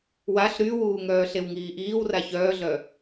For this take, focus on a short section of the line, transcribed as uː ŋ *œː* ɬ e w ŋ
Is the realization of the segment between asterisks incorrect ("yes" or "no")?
no